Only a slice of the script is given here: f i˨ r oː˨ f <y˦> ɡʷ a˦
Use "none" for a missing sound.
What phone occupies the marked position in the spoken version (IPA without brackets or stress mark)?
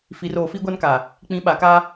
i˦